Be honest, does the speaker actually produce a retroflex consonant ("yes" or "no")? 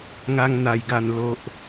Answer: no